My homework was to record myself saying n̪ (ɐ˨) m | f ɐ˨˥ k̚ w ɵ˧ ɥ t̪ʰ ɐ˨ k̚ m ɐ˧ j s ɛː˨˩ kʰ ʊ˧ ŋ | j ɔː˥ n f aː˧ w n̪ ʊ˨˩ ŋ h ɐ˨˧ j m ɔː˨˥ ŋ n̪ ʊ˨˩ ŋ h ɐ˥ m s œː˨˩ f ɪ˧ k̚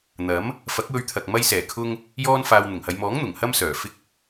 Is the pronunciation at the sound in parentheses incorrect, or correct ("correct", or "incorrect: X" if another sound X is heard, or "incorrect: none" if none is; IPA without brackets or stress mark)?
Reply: incorrect: ɐ˨˥